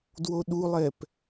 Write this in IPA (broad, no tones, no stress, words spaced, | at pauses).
dwoɗulˠɛp